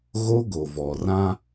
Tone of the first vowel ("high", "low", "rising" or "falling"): high